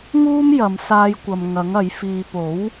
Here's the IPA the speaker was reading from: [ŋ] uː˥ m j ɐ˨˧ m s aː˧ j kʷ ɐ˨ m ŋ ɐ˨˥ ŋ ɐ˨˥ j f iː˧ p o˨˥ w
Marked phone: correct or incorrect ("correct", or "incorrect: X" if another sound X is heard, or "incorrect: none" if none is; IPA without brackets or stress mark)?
correct